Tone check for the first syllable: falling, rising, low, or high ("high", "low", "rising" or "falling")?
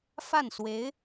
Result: falling